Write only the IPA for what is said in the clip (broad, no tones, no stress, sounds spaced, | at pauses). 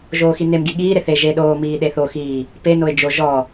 ʒ oː x i n e m ɡ i ɠ iː ɾ e θ e ʒ e ɗ oː m iː ɗ e θ o x iː | p e n o ɪ̯ d͡ʒ o ʒ ɔ